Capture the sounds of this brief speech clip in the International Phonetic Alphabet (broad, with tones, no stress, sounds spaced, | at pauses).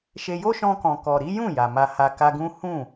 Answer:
ʃ e˦ j o˦ ʃ ɔ̃˧ k ɔ̃˨ k ɔ˨ ɾ i˨˦ j ũ˦˨ j a˨ m a˧ h a˧ k a˧ ɡ ũ˦ h ũ˦˨